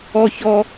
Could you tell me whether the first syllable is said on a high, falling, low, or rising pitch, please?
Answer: high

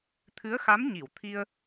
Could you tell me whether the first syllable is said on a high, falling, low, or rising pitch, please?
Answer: rising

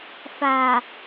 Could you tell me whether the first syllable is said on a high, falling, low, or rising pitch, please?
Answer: low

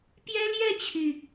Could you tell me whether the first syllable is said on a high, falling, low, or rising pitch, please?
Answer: high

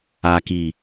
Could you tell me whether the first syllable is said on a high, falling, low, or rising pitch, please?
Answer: low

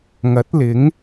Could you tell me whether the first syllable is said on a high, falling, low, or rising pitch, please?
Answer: rising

